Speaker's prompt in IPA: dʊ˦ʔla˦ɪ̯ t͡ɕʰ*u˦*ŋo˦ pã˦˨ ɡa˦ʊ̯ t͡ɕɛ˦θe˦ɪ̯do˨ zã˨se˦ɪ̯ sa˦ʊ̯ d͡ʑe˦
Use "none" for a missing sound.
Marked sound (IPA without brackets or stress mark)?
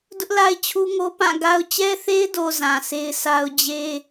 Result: u˦